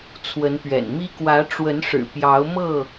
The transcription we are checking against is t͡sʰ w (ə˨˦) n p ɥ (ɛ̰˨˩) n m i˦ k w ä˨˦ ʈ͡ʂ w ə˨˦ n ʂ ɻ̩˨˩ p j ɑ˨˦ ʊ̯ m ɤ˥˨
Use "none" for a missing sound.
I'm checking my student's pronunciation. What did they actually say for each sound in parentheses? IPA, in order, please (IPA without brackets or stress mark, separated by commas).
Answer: ə˨˦, ɛ̰˨˩